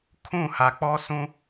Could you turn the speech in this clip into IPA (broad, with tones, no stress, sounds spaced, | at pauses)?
kʰ ũ˦˨ h a˨ k͡p ɔ˦ s ũ˦